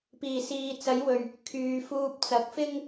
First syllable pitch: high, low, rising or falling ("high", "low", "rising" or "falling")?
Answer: low